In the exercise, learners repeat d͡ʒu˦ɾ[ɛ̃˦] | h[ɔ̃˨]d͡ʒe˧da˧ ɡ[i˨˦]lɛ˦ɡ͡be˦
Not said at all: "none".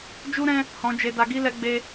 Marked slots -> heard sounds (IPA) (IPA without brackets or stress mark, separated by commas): ɛ̃˦, ɔ̃˧, i˦